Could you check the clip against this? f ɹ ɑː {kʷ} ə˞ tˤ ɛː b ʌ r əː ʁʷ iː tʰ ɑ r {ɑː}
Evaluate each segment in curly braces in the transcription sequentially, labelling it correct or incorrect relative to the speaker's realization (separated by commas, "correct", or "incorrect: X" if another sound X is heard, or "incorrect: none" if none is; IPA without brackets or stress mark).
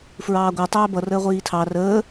incorrect: ɡʷ, incorrect: əː